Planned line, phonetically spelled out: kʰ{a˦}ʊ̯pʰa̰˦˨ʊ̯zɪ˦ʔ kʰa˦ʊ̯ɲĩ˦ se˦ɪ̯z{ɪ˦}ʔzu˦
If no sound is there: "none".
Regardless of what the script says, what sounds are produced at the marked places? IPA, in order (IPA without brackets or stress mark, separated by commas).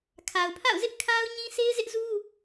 a˨, ɪ˦